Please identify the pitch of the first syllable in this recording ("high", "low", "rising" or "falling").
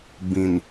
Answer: low